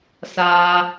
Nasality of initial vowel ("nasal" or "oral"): oral